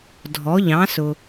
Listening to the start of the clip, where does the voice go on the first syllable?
rising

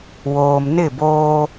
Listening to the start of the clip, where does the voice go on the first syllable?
low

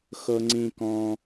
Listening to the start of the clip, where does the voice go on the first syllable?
high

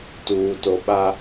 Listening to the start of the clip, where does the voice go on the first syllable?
low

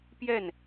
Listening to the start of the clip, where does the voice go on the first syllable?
falling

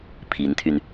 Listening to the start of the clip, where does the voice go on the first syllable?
rising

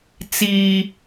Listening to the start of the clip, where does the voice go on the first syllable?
high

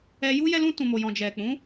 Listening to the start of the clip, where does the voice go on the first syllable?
high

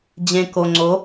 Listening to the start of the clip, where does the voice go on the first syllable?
low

